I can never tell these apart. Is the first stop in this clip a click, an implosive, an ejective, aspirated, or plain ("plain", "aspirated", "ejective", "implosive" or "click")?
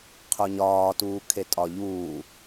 aspirated